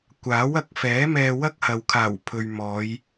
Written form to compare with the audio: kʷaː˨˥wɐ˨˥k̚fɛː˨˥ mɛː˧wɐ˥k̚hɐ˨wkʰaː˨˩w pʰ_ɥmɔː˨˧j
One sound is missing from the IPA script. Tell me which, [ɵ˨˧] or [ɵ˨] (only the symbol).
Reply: ɵ˨